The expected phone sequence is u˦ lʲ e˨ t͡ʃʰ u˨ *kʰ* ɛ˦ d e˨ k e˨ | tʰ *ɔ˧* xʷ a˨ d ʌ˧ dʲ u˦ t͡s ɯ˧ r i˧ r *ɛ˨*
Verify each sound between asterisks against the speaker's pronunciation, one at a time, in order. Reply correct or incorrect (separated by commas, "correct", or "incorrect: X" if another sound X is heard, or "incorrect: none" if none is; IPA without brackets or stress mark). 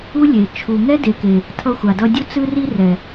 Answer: incorrect: ŋ, incorrect: ʌ˧, correct